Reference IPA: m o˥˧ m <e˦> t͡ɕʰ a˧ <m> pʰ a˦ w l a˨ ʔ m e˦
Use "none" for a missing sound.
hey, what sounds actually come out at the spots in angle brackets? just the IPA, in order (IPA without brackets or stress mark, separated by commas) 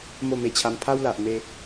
e˧, m